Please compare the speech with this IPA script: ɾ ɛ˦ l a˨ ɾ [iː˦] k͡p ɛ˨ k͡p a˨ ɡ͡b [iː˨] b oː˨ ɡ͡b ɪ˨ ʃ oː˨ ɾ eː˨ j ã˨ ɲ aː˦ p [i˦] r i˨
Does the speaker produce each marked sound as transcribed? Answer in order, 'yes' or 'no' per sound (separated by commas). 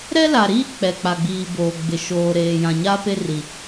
yes, yes, no